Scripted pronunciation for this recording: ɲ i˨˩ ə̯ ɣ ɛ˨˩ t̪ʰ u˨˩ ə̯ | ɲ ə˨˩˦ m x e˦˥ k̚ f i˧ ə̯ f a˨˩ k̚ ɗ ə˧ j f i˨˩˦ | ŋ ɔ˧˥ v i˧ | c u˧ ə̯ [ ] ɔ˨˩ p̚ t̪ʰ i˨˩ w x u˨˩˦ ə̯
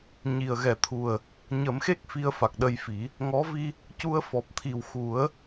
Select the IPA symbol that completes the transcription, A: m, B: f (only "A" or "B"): B